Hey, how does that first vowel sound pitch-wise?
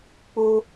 high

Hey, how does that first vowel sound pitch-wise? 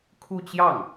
falling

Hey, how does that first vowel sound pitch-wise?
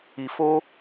low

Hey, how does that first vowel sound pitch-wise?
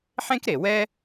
high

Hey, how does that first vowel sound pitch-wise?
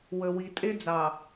low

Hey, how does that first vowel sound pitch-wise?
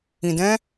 low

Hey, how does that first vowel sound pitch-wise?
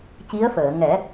rising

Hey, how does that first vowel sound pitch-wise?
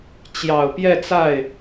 low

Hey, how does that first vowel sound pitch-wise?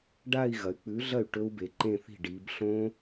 falling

